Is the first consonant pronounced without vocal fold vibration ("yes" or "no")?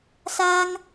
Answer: yes